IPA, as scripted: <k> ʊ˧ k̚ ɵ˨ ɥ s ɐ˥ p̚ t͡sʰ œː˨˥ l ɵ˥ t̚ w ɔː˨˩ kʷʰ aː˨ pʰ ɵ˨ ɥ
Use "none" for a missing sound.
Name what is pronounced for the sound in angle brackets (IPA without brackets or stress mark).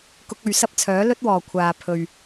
k